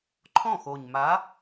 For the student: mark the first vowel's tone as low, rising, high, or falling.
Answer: falling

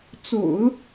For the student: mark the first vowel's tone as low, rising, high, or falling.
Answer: low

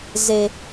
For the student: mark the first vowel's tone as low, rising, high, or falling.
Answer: low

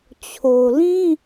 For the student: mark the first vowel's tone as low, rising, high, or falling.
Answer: low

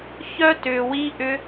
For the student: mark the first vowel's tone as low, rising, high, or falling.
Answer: high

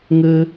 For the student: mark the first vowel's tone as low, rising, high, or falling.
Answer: high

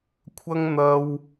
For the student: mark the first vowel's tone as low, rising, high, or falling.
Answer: high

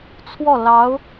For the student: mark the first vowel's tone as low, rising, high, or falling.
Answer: falling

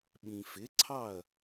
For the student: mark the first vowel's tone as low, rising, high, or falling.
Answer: low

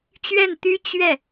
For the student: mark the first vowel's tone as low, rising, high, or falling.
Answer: falling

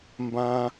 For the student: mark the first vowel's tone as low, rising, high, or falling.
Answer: high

